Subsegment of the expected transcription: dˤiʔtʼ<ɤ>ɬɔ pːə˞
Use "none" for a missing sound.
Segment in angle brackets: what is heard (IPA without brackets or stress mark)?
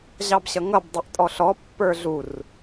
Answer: ɔ